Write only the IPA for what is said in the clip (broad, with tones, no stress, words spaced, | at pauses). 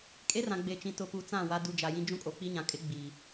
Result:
kʼe˦rã˨ ɡ͡be˨t͡ʃĩ˨ tʊ˨pu˨ t͡sã˦˨ wa˦du˦ d͡ʒa˨jĩ˦ d͡ʒũ˦kʼo˨k͡pi˦ɲã˨ kʼɪ˦ɡ͡biː˨